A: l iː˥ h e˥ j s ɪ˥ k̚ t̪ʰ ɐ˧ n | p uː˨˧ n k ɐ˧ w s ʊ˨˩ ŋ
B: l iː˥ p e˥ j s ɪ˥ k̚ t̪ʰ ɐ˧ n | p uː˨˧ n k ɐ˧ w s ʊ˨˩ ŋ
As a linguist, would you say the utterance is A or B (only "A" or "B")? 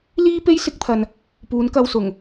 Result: B